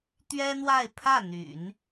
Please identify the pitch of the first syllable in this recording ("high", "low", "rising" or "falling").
high